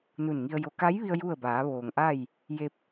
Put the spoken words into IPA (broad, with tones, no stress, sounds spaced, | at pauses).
n u˧˩ n ŋ i˧ ə̯ j o˧ k a˧˥ j ʋ i˧ ə̯ j u˥˨ ə̯ b aː˩˧ ʋ oː˩ ŋ ʔ a˥˨ j | j e˧ p̚